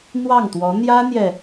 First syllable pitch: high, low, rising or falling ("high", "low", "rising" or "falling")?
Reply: falling